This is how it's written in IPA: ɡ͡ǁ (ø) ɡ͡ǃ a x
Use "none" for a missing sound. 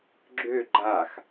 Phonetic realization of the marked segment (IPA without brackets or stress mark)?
ø